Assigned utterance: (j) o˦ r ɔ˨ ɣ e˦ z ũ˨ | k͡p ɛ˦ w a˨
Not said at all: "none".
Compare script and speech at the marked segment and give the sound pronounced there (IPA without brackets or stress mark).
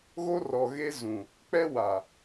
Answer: ɣ